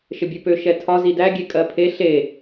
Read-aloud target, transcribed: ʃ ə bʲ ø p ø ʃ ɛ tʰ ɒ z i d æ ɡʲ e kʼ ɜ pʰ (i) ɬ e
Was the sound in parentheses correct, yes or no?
no